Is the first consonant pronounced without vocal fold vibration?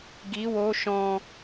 no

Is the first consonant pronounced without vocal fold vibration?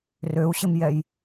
no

